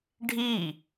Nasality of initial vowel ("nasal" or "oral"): oral